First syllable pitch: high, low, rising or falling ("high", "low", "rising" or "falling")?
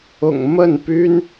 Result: low